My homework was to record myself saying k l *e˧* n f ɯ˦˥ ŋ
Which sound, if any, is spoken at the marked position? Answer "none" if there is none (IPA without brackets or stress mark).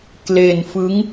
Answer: e˧